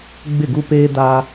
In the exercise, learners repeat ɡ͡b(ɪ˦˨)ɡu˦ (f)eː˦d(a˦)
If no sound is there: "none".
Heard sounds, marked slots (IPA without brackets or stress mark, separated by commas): ɪ˦˨, p, a˦